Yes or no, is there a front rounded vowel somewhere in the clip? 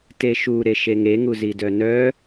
yes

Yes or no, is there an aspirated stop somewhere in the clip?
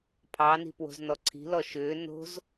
yes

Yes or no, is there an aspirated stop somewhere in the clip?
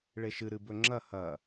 no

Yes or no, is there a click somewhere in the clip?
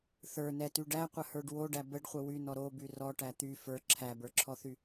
yes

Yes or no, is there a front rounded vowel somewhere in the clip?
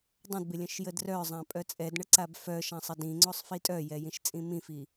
yes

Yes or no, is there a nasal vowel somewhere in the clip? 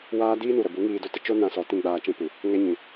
yes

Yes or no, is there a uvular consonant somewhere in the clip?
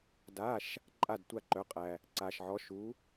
yes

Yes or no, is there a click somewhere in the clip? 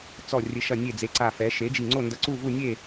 yes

